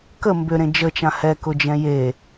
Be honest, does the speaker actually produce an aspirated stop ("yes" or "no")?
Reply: no